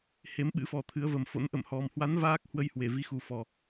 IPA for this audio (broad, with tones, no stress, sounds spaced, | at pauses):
h e˨˦ m ɓ ɨ̰˧˥ f ɔ˨˩ t̪ʰ ɨ˨˦ ə̯ v ə˨˩ m f o̰˧˥ n ʔ ə̰˧˨ m h ɔ˨˩ m h w a˨˦ n v aː˦˥ k̚ h w ə˧ j h w e˧˩ v i˨˦ x u˨˩ f ɔ˨˩